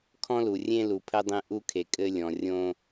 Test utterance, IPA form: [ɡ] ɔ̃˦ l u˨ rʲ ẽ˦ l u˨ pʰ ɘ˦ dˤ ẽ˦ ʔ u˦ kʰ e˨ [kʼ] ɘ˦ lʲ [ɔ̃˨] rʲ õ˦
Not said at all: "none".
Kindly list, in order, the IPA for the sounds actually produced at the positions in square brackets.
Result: kʰ, kʼ, ɔ̃˨

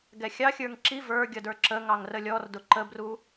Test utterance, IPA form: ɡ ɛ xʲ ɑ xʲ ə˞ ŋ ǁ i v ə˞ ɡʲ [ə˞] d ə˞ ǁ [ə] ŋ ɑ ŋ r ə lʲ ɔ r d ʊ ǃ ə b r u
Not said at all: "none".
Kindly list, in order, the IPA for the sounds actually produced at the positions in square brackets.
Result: ʌ, ə

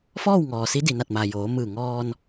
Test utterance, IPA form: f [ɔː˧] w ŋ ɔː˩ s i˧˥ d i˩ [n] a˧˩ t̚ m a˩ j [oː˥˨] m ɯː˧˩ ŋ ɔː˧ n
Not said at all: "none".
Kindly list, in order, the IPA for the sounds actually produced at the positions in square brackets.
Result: ɔː˥˨, n, oː˩˧

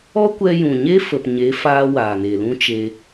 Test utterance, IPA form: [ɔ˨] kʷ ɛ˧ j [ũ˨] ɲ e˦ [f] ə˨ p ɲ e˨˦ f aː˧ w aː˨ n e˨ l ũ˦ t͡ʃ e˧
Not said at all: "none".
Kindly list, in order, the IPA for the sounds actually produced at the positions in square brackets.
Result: ɔ˦, ũ˨, f

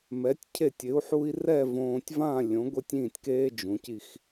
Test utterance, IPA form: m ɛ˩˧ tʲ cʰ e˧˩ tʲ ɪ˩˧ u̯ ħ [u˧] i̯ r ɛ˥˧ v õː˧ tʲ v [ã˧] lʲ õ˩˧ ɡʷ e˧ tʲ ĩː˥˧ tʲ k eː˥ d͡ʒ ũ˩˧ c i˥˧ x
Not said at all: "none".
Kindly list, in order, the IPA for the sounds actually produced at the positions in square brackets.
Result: u˧, ã˥˧

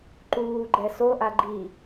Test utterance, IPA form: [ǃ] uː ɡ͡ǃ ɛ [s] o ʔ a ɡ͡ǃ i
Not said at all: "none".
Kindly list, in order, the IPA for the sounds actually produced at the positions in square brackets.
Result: ǃ, s

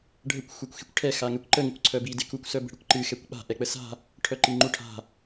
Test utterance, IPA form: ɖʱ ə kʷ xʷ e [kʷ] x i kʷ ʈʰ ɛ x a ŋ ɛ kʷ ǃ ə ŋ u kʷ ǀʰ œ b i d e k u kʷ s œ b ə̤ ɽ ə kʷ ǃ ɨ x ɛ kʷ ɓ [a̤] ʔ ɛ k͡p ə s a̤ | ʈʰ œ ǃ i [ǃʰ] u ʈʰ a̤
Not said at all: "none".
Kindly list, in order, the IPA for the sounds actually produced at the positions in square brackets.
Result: kʷ, a̤, ŋ͡ǃ

